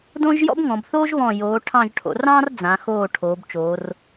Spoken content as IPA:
d õ˥ ʒ j ɔ̰˥ b ŋ ɔ̃˩˧ b θ oː˥ ʒ β ɔ̃˧˩ j oː˩˧ ʈʰ ɑ̃˧˩ ʒ ʈʰ o̰˩˧ r ɑ̃ː˥ r d͡z ã˩˧ x oː˧˩ ʈʰ oː˩˧ b t͡ʃ oː˩˧ r

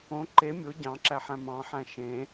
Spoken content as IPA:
õ ǃ e mʲ o ɟ ɑ̃ ǁ æ ħ æ̃ m ɑ̃ ħ æ̃ ʃ ẽ

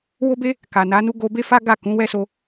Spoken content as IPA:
w o˦ b e˦ | k a˨ n a˨˦ n u˦ ɡ o˧ b e˦ f a˦ ɡ a˦˨ k ũ˨˦ w ɛ˦ s o˧

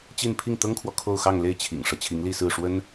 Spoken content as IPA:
t͡ɕ i˥˧ n pʰ i˥˩ ŋ t̪ ɤ˥ ŋ kʰ w ɔ˨ kʰ o˥˧ ʊ̯ x ɑ˥˧ ŋ l e˥˩ ɪ̯ t͡ɕʰ ḭ˨˩ ŋ ʂ ɤ˦ t͡ɕʰ i˧˥ ŋ l i˥˧ s ɹ̩˥˩ ʂ w ə˥ n

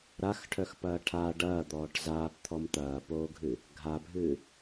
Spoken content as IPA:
ɾ a x ʈʰ œ x p ɐː ʈʰ a ɖ ɐː d̪ ɔː ʈ z aː p t̪ʰ ɔ m t̪ ɐː p oː ɡʱ ɨ | ɡʱ a bʱ ɨː

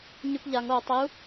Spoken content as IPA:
ɲ ʉ p ʎ a ŋ o tˤ i u̯

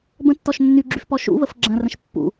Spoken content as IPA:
b ə̃ tː ɔ ʃ nː y ɡ͡ǁ y f p ɔ ʃ ṵ β ə f ɡ͡ǁ ɐ̃ r ə̃ ʃ pː ṵ

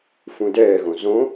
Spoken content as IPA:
f ũ d ɛː ɣ õ z õ

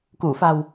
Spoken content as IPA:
k u˧˩ f a̤˨˩ w

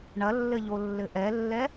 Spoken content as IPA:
ɳ ɐ lː ɘ ʎ o lː ɘ ʔ ɛ lː ɛ

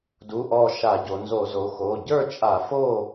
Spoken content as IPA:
d u˩˧˩ ʔ ɔ˧˩ ʃ a˧˩˧ ɟ o˩˧ n z o˧˩˧ z o˩˧ x o˩˧˩ ɟ ə˞˥˨ t͡ʃʼ a˧˩˧ f o˥˨

